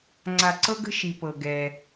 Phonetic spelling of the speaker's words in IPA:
ŋ͡ǀa˨ǀɤ˦ɡə̤˦ ʃi˨pɤ˨ ɡɛ˦

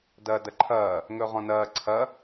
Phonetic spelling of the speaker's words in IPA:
dɐːdɐǃʰɐː | ŋɵʁɔ̃nɐː ǀʰɐ

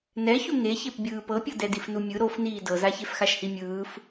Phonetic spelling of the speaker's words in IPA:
nɛçu ŋeçep bʲɯːpɤpʲɤ dɛdifnumʲɯ ɾof niːdɤzaçef xaʃhimʲɯːf

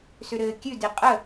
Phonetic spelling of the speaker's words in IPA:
sʏɾɘːkʲʉdi qʼə

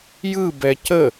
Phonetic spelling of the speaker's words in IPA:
jɯbɛ cə

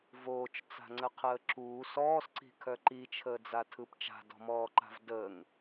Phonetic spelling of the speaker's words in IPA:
voːt͡ʃt͡sa̤ŋ͡ǀəqʰəː ǁuː sɔːsǀi̤kʰœ ǃit͡ʃʰəːd͡zatʰɯp t͡ʃa̤dɔ̤mɔːǃa̤v dəːŋ

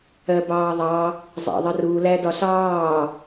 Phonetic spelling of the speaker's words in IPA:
ɜbɑːðˤɑ | zˤɑ̰ðˤəru lædɒɬɑː

